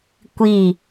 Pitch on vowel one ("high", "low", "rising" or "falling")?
falling